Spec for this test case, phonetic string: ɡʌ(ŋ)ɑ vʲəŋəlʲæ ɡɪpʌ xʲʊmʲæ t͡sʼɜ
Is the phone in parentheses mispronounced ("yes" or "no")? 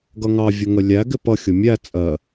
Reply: no